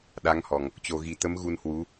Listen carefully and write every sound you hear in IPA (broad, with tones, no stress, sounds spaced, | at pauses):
ɗ a˨˦ ŋ h ɔ˨˩ ŋ | t͡ɕ o˨˩ ɣ i˨˩ t̪ ə˨˦ m ɣ u˧ n h w u˨˦